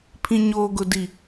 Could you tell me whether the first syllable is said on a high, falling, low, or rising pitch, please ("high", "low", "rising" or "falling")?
low